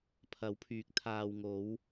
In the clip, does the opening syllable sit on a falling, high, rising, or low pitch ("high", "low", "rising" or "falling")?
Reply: rising